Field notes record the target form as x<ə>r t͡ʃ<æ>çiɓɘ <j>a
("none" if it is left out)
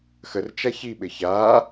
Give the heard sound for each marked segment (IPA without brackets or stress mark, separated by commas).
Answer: ə, a, ç